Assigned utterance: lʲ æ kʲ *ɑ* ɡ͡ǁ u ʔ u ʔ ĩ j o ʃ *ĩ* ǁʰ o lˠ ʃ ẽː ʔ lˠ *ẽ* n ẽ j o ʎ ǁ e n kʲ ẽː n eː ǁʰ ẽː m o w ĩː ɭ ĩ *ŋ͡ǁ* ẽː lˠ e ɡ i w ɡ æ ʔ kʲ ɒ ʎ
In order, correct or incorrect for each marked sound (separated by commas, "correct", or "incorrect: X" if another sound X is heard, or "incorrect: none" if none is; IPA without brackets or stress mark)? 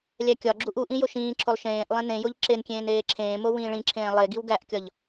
incorrect: ɒ, incorrect: ĩː, correct, incorrect: ǁʰ